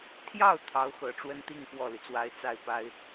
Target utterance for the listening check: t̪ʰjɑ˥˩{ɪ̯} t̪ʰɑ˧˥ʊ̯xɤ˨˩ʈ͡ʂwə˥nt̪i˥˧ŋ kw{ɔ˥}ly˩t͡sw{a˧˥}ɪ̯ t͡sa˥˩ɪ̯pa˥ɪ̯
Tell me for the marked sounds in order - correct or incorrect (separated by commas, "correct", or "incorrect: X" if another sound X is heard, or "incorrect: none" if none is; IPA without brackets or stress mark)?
incorrect: ʊ̯, incorrect: ɔ˥˩, incorrect: a˥